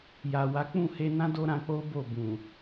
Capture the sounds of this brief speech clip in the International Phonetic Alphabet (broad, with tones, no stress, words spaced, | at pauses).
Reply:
ja˨wa˨˦ k͡pũ˦˨he˧nã˦ do˦ɾã˧k͡po˦ bo˦˨ bũ˨